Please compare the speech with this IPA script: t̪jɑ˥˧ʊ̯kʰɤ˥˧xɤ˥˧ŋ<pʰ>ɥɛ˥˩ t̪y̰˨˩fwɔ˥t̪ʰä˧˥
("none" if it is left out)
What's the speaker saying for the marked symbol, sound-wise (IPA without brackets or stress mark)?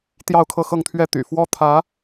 t̪ʰ